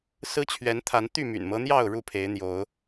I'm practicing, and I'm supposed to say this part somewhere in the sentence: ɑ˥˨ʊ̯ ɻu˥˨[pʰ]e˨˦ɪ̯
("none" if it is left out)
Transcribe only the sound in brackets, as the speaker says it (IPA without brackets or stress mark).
pʰ